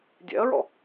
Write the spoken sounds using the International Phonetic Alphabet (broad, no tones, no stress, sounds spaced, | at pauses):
dʲ ɛ̰ ɐ̯ ɹ ɔ̰